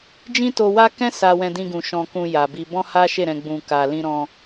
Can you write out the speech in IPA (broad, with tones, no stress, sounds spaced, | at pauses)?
d͡ʒ ĩ˦ t o˧ w a˦ k ɛ̃˦ s a˧ w ɛ̃˧ d ĩ˧ ɡ ũ˨ ʃ ɔ̃˨ k ũ˨ j a˨ b i˧ b ɔ̃˦ h a˦ ʃ e˦˨ ɾ ɛ̃˨ ɡ͡b ũ˨ k a˨ l ĩ˧ ɾ ɔ̃˧